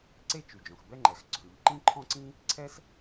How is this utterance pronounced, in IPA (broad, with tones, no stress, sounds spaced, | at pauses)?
ǀ e˥ t͡ʃ y˩ d͡ʒ ɔ̃˩ x b ɛ˥ ŋ͡ǃ ɛ˩ x ǀʰ ʉ˩ ʎ ǃ ĩ˥ ǃʰ ɔ̃˥ ǀ ĩ˥ | ǀʰ ɛ˥ s